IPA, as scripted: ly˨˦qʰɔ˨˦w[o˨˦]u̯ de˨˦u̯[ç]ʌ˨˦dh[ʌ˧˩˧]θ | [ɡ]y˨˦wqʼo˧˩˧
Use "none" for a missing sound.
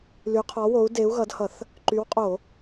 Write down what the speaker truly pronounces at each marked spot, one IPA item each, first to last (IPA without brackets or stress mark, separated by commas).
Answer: o˨˦, ɣ, ʌ˧˩˧, ǃ